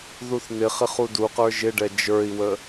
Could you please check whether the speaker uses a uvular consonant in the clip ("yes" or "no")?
yes